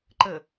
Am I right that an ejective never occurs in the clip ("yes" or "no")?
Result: yes